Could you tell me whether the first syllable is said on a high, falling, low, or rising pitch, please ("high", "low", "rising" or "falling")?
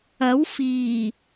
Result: rising